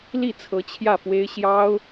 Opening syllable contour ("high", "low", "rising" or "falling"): falling